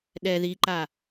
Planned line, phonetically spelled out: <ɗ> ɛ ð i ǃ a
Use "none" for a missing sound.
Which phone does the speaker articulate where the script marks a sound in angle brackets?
ɗ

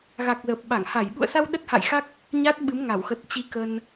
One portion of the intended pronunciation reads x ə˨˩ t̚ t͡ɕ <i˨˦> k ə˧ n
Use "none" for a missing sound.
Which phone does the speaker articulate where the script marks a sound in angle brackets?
i˨˦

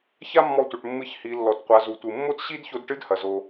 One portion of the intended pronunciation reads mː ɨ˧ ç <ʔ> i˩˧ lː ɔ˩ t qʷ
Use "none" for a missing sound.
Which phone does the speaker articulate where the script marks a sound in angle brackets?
h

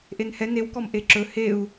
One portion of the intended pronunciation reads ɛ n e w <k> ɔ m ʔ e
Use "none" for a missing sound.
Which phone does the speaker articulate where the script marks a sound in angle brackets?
k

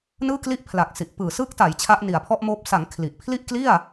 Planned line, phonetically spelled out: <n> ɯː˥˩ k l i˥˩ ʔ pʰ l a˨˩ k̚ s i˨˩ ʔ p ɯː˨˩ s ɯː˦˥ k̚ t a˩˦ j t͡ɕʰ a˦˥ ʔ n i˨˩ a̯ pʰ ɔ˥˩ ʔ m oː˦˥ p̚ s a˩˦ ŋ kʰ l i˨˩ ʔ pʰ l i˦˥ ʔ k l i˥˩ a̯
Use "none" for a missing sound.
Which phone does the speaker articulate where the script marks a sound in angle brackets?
n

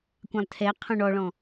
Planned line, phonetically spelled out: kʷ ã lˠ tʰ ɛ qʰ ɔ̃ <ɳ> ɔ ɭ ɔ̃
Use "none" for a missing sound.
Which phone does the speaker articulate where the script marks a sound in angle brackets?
ɳ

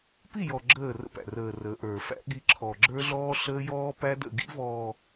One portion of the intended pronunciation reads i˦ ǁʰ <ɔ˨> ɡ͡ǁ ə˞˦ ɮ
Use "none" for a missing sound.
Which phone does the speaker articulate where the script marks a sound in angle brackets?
ɔ˨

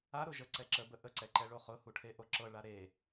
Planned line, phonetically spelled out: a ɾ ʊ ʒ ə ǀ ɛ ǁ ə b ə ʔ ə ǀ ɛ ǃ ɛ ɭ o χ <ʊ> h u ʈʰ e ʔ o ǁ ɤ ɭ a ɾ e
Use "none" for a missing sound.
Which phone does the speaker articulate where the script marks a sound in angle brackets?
ʊ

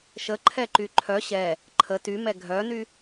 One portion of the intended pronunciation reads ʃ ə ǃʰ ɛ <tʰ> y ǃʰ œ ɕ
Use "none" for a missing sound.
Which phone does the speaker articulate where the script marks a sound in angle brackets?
ǃ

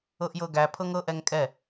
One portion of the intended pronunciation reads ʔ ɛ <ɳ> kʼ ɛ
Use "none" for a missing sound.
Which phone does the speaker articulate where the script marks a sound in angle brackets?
ŋ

